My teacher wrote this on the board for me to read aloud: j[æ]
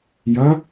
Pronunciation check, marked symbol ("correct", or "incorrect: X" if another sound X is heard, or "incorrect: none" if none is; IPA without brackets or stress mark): incorrect: ɐ